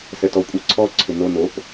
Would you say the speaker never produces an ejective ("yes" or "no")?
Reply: no